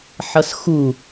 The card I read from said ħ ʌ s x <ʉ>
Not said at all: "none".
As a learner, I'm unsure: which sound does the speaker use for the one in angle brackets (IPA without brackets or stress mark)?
u